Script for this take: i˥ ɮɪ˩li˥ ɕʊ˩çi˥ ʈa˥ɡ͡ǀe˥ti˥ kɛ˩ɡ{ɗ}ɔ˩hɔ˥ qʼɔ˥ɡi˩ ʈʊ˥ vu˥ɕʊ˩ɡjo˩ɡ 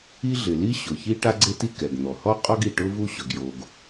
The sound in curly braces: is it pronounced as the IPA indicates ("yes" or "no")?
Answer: no